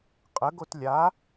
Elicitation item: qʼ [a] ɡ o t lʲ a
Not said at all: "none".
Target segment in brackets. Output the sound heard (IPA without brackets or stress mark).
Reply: ə